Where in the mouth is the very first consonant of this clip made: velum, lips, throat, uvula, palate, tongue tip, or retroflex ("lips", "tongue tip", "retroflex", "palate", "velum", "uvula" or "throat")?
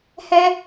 throat